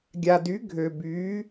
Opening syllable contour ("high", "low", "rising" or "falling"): low